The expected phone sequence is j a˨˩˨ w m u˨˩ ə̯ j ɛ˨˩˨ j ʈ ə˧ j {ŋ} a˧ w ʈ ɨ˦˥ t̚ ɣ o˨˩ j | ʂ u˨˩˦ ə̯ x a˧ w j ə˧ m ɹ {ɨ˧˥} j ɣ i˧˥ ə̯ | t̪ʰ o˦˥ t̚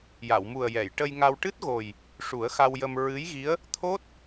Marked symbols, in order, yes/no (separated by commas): yes, yes